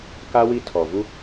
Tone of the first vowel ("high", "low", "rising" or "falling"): high